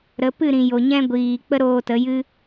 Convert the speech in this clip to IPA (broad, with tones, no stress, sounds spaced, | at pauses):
ɾ ə˨˦ p ɨ˦˨ ɾ ĩ˨ j o˨ ɲ ɛ̃˧ ɡʷ iː˨ k͡p ə˦ ɾ oː˧ t ə˨˦ j ɨ˦